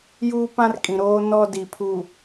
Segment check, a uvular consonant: absent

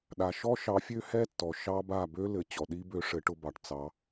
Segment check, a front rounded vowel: present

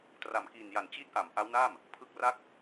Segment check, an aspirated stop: present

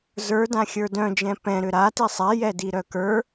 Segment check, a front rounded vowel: present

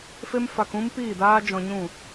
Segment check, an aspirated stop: absent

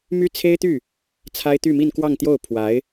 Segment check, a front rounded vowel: present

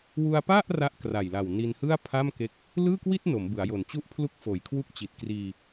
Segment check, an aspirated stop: present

